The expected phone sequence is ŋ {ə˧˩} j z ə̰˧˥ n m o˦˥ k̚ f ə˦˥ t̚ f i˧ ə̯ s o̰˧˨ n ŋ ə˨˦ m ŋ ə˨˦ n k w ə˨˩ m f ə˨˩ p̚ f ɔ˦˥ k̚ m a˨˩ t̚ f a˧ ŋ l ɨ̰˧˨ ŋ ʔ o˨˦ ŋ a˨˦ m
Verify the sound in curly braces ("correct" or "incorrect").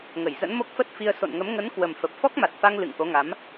correct